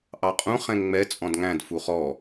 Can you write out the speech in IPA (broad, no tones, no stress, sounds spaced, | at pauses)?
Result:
ʔ ɑ qʼ ũ χ ɛ̃ ŋ ŋ͡m ɛ t͡sʼ ɔ̃ d ŋ æ̃ d f u χ ɔ